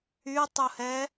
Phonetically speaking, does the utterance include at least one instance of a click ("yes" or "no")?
no